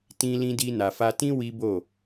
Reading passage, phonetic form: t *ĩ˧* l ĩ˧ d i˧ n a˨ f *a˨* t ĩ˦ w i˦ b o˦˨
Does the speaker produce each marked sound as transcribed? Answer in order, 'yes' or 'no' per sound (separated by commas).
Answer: yes, no